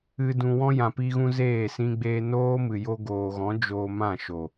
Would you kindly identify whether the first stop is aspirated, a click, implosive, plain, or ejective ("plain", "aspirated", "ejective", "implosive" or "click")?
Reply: plain